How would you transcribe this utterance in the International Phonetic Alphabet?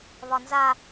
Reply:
β ɒ n z a

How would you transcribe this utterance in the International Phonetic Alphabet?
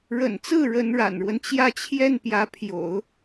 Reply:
ɻ ə̰˨˩ n t͡s ɹ̩˥˩ ɻ ə˧˥ n ɻ a̰˨˩ n ɻ w ə˦ n t͡ɕ j ä˥˧ t͡ɕʰ j ɛ˥˩ n p j ä˧˥ pʰ j o̰˨˩˦ ʊ̯

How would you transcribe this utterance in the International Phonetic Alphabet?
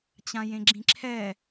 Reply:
t͡ɕ ã j ẽ ɡ͡ǁ ĩ ǁʰ ɛ

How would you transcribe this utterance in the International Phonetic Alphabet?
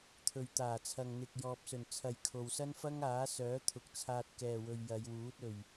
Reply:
t̪ʰ ɵ˨ ɥ t̪ aː˨˩ t͡sʰ ɐ˨ ŋ n̪ ɪ˨ k̚ j ɔː˨ p̚ s ɵ˨˩ n t͡sʰ ɐ˨ j kʰ o˨ w s ɐ˥ n f ɐ˥ ŋ aː˨˥ s œː˨˥ t̪ʰ ʊ˨ k̚ t͡sʰ aː˧ t̚ k ɛː˨ w ɵ˨ ɥ j ɐ˨˧ j w uː˨˥ t̚ ɵ˨ ɥ

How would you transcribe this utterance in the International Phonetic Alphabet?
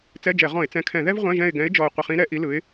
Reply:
t͡s ɛ˧˥˧ d͡ʒ ɛ˧˩˧ ʁ ɔ̃˧˩˧ ɪ̯ t͡s ɛ̃˨˦ kʰ ɛ̃˧˩˧ ð ɛ˥ v ʁʷ ɛ̃˧˥˧ ʒ ɛ̃˦˨ ɪ̯ ɡ ɛ̃˨˦ ɪ̯ d͡ʒ ɔ˨˩ ʊ̯ qʷ ɪ˨˩ χ ĩ˨˦ ɾ ɛ˧˩˧ ʔ i˨˦ l ɯ˨˦ ɪ̯

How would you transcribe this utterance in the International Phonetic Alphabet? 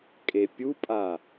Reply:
kʼ e pʲ u pʼ a

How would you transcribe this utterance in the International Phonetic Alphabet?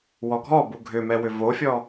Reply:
w ɔ ɡʱ ɔ b u ɡʱ ʏ m ɛ w ʏ v o fʲ ɔ

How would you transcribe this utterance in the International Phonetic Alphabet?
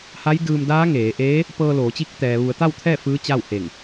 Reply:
h a˧˥ j d ɯː˧ m d aː˧˥ ŋ eː˩˧ ʔ eː˧˥ | p ɤː˧ l oː˩˧ t͡ɕ i˧˥ k̚ t̪ ɛː˩ ʋ u˩˧ ə̯ t̪ a˥˨ w t̪ʰ ɛː˥˨ f ɯː˧˥ t͡ɕ a˥˨ w h e˧˩ ŋ

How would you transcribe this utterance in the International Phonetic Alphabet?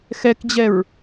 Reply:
x ɛ k d͡ʑ ɛ ɹ

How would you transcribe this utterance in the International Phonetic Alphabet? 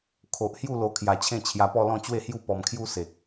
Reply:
kʰ o˨ ʔ h j u˥˧ l o˧ kʰ j a˨˩ t͡ɕʰ ẽ˥˧ t͡ɕʰ j a˧ p ɔ˥˧ l ɔ̃˥˧ t͡ɕ w e˥˧ h j u˥˧ p ɔ˧ m kʰ j u˦ s e˨ k̚

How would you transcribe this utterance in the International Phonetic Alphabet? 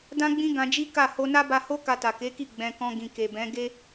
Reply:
d ã˦ ɡ͡b ĩ˦ ɡ ã˧ d͡ʒ i˦ k a˦˨ h o˧ n a˦ b a˧ h o˦ k a˧ t a˨ k e˨˦ k i˦˨ ɡ͡b ɛ̃˧ k ɔ̃˧ ɡ ĩ˨ k e˨ b ɛ̃˨˦ ɡ e˦

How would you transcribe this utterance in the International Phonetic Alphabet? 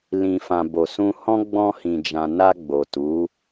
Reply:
l ĩ˨ f ã˨ b o˨ s ũ˧ h ɔ̃˦ ɡ͡b ɔ̃˧ h ĩ˨ d͡ʒ ã˨ n a˧ ɡ͡b o˨ t u˨˦

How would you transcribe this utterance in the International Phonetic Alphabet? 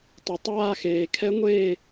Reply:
tˤ y˩ tˤ aː˦˨ x eː˩ kʰ ɛ˧˥ ŋʷ eː˦˨

